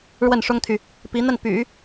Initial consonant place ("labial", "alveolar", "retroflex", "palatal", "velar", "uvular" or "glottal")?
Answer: retroflex